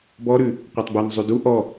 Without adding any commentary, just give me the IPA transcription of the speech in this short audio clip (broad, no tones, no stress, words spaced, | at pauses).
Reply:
bɔɾʉ | qʷatˤbun zˤʉdu ʔɔ